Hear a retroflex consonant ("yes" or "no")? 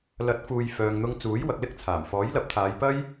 no